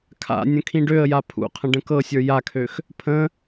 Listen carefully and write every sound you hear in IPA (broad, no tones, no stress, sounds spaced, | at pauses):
kʰ a̰ nʲ ə̃ kʰ ĩ ɖ ø ə̯ j a pʰ ṵ qʰ ə̃ ɖ ə̃ k ɤ sʲ ə˞ j a kʰ ø x | pʰ ə̃